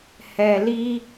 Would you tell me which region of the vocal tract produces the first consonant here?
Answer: throat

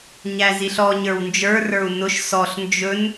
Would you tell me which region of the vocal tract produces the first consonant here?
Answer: palate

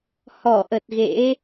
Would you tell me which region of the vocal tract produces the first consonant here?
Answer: throat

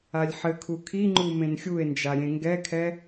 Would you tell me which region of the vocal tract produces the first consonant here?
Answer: tongue tip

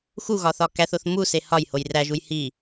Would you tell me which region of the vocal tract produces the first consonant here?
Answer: velum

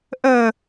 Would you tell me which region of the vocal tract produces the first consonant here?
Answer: throat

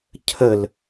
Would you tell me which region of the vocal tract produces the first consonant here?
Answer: palate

